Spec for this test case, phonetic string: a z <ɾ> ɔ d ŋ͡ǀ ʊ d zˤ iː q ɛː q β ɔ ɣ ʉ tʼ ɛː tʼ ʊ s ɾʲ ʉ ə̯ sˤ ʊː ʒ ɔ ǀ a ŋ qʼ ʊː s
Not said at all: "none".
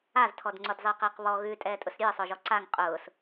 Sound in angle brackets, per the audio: tʰ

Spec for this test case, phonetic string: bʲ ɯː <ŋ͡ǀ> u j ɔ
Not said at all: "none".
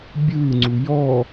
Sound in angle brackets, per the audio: ŋ͡ǀ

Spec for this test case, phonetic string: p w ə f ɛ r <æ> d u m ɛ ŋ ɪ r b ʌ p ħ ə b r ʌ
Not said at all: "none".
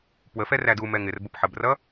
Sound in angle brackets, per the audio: æ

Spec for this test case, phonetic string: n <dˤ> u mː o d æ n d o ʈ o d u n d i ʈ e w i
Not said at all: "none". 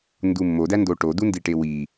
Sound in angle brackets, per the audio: d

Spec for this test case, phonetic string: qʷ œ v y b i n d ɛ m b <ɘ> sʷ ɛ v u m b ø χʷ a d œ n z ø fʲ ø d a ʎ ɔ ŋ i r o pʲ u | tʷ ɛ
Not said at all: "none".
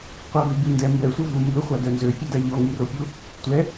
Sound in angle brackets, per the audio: ɛ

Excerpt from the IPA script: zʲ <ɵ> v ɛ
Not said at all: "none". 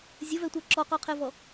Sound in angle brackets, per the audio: ə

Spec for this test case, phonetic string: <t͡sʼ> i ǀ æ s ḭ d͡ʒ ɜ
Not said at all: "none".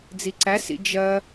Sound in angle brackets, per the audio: d͡z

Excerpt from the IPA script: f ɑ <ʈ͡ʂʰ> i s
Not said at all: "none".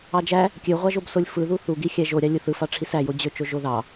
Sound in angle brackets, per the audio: ʈ͡ʂʰ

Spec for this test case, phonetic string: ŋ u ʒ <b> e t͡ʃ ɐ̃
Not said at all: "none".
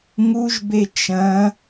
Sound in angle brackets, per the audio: b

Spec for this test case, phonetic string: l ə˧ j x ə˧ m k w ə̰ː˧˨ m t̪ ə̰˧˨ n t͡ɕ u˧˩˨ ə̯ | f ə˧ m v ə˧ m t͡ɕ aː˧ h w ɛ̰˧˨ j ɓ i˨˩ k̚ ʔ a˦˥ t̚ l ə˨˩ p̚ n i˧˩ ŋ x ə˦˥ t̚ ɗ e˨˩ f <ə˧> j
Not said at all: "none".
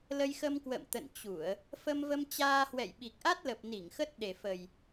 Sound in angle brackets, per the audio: ə˨˩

